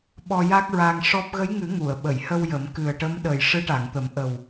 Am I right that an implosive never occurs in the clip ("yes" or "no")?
no